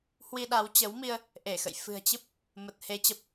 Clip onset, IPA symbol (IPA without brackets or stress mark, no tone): h